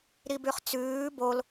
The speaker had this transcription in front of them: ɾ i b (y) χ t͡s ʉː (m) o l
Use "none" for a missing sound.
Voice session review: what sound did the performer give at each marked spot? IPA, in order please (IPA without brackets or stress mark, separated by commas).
y, b